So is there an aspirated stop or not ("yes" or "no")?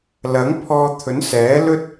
yes